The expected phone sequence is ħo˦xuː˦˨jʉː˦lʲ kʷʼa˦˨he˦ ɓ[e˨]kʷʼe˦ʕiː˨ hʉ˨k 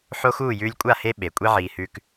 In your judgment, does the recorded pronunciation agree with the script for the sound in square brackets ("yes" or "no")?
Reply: yes